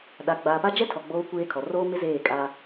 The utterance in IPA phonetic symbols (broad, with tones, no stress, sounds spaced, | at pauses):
ɗ a˨ ɡ͡b aː˨ p a˦ d͡ʒ ɛ˦ tʰ ɔ˨ ɡ͡b oː˦ kʷ eː˦ kʰ ɔ˨ r oː˦ m ɪ˦ z eː˦˨ kʼ a˦